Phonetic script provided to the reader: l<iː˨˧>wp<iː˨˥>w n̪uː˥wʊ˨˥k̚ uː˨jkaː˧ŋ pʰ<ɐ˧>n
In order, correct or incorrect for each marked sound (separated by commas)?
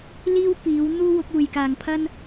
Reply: incorrect, correct, incorrect